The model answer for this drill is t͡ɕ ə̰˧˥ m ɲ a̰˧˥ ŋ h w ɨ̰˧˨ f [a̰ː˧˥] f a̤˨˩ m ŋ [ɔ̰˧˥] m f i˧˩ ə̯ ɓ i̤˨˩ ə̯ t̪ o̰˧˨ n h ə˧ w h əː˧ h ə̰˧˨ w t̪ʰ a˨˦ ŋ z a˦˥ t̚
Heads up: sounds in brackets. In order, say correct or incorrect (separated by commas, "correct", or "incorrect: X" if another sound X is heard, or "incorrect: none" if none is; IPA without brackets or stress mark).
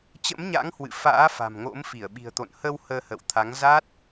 correct, incorrect: o̰˧˥